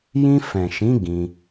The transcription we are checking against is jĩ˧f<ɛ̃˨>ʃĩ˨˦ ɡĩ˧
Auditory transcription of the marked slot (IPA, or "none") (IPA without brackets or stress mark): ɛ̃˨